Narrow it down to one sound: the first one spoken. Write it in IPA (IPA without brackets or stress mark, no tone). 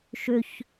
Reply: ʃ